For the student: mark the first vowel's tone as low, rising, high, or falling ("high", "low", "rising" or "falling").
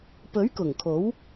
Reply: rising